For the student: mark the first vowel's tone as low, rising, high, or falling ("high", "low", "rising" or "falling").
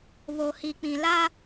low